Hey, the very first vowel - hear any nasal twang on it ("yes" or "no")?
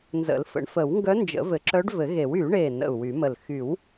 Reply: no